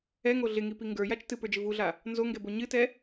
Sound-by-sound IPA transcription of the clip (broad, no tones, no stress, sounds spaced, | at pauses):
ɛ ŋ o ɮ ɪ ŋ i p i ŋ ɡ ə˞ j a t͡ʃ t ɨ p ə˞ d͡ʒ ɪ v u ɮ a | n z o ŋ ɡ ɛ b o ɲ ɨ t ɛ